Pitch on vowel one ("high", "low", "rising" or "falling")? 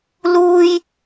high